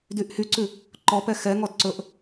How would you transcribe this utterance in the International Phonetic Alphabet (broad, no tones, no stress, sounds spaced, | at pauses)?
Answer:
d y ʔ h y ǀ ʉ | ǃ ɔ p ɛ x ɛ ŋ ɔ d ǀ ɵ ʔ